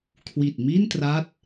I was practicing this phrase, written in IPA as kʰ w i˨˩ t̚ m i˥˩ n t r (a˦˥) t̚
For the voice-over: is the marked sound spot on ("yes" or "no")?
yes